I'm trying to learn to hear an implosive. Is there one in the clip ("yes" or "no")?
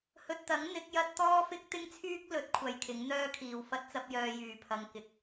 no